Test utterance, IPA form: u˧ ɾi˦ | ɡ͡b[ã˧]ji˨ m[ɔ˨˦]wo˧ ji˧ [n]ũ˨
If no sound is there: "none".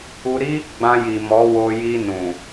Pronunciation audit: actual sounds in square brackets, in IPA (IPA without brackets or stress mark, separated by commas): ã˧, ɔ˨˦, n